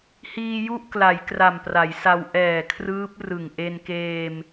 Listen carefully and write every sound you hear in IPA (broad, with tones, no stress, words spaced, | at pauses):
hiː˧ ju˥˩ʔkla˩˦j kra˨˩mpra˩˦jsa˧w ʔɛː˨˩kʰrɯː˦˥p̚ rɯ˨˩ŋ ʔe˧nkeː˧m